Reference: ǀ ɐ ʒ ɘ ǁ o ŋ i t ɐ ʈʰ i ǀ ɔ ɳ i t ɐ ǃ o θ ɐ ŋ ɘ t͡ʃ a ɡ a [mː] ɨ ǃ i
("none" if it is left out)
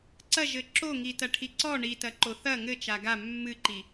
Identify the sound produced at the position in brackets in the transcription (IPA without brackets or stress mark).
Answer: mː